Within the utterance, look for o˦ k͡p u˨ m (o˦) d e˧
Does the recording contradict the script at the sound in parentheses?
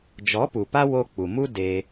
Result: yes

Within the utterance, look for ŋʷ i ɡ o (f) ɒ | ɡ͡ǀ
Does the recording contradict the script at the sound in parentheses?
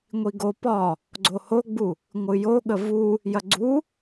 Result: yes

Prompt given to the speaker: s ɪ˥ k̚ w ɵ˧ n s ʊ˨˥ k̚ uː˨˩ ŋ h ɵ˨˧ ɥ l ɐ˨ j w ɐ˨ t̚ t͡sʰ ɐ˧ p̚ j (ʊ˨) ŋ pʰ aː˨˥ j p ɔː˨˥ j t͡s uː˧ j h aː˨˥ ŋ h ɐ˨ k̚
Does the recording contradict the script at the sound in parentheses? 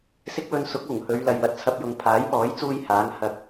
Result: no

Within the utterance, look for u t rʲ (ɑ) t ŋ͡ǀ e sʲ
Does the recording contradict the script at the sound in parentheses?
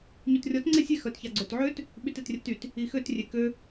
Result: yes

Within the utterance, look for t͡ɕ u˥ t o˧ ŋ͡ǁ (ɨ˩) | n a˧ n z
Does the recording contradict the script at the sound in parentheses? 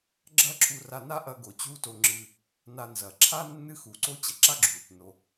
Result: yes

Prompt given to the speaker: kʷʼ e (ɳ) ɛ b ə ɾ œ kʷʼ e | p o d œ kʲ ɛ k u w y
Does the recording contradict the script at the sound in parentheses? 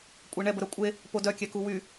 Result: no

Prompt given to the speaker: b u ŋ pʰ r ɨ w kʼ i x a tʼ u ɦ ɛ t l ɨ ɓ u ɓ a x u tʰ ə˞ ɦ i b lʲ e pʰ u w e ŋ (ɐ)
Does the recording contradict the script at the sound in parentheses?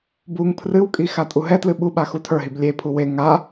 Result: yes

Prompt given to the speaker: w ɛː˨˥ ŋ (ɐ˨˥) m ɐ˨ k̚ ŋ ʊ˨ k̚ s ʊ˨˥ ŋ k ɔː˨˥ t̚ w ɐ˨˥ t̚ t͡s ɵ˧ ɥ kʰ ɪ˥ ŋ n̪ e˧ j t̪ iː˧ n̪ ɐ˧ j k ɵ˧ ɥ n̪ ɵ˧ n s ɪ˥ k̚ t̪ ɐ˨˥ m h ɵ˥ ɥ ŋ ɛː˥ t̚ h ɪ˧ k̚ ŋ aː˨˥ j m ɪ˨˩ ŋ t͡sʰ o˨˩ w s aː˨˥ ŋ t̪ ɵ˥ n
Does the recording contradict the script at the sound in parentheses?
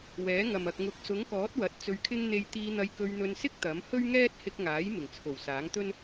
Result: yes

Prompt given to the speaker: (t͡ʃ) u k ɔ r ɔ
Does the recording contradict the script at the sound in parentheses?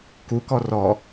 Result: yes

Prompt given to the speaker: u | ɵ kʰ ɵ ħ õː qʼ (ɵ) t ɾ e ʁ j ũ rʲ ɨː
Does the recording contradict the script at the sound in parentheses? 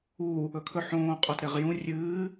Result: no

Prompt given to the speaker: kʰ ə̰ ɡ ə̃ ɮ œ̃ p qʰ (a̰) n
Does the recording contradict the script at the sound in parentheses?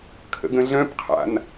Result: no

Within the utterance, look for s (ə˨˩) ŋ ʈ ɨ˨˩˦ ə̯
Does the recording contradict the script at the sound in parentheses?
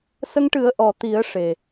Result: yes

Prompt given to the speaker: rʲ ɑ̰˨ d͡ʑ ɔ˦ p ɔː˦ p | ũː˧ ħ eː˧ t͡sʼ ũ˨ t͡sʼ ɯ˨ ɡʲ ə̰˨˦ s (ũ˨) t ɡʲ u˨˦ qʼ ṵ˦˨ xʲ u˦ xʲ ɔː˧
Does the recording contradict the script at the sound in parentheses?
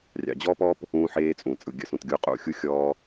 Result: no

